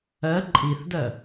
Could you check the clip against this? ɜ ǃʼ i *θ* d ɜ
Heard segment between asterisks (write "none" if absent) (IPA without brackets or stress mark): θ